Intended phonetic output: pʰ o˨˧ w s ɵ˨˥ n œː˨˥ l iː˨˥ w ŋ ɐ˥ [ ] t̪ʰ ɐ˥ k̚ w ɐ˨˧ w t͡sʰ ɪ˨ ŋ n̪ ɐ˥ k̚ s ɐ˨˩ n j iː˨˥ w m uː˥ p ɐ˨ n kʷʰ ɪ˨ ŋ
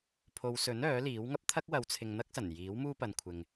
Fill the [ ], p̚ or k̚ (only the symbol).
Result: p̚